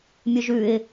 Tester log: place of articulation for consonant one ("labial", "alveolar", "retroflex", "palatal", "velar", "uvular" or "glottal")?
labial